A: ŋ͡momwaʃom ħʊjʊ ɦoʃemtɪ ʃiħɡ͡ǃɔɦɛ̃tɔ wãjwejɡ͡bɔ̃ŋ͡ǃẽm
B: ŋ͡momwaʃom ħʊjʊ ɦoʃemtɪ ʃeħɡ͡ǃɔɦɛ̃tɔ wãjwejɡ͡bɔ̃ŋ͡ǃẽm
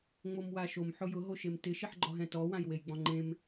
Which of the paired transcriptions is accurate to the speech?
A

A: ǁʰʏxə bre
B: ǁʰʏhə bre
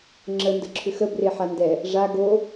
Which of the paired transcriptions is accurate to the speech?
A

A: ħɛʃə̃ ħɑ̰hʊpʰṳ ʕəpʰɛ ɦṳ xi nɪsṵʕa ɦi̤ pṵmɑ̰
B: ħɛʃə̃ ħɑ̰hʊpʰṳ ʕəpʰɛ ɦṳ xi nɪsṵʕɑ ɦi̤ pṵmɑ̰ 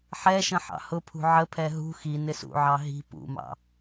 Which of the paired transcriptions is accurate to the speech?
B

